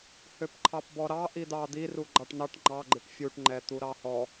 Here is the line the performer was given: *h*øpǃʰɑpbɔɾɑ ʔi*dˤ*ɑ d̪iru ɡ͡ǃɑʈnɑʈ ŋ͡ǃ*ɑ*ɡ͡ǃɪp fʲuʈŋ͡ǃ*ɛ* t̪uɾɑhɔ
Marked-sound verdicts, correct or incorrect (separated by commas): correct, incorrect, correct, correct